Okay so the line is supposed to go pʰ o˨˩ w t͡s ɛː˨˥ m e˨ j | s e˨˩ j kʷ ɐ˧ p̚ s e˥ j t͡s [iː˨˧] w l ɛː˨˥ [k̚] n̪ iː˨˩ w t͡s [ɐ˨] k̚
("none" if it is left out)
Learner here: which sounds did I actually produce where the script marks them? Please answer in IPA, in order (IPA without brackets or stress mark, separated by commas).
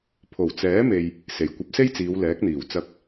iː˨˧, k̚, ɐ˧